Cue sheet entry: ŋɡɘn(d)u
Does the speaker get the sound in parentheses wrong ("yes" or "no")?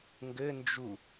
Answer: yes